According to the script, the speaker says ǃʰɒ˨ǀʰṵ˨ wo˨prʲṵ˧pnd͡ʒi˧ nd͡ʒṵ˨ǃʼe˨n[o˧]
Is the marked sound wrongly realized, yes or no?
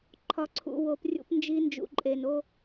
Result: no